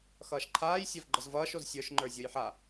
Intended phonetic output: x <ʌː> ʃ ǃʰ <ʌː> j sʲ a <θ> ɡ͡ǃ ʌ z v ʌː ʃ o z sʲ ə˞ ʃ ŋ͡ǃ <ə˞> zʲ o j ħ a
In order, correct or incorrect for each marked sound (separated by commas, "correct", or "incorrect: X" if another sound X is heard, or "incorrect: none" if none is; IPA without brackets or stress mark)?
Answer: correct, incorrect: aː, incorrect: v, correct